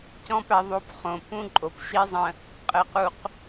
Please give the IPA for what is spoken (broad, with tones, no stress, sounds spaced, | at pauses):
c ɔ̃˦ p æ˧ ðˤ o˧ p χ õ˨ p ũ˦ ǃʼ o˨ p ʃ i˦ zˤ ə̃˧ | qʼ ə˧ q u˧ q